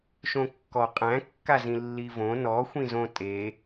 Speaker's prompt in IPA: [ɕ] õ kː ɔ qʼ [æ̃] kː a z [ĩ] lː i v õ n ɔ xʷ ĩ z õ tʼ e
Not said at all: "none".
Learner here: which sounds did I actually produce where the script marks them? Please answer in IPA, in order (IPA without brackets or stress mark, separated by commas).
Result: ʃ, æ̃, ĩ